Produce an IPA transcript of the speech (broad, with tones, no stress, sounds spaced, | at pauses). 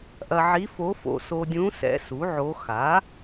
ʔ ɐ˧ ʕ i˧˥ f o˧˥ f o̰˧ s o˧ dʲ ũ˧˥ s ɛ̰˧˥ s u˩˥ ʕ o˧˥ x a˩˥